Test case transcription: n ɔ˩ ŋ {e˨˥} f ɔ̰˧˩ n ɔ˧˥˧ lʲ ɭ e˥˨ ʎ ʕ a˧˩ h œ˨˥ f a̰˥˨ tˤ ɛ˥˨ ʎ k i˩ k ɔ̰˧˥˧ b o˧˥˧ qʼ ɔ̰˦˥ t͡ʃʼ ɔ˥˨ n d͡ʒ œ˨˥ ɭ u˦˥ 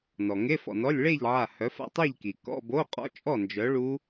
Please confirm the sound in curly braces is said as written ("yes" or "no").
no